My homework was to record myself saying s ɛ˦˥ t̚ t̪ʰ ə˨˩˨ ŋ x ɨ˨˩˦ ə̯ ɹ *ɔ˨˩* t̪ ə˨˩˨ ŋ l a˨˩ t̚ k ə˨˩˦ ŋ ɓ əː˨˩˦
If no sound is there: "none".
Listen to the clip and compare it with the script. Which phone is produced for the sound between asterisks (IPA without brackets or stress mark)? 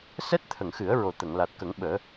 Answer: o˨˩